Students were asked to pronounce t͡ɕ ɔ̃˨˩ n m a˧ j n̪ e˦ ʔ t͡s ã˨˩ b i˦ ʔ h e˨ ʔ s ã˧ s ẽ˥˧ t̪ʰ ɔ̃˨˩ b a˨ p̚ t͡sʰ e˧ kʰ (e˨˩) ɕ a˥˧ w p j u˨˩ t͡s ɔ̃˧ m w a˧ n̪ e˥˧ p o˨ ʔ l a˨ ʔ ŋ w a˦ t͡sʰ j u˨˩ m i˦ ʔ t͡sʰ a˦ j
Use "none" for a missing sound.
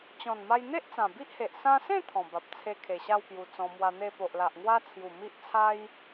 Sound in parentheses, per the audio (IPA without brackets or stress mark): e˨˩